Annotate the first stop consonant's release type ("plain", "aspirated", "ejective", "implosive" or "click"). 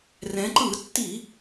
click